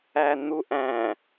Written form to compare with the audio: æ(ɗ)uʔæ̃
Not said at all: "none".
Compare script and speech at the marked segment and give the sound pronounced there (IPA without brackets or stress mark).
n̪